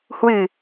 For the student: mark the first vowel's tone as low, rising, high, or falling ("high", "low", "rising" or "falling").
low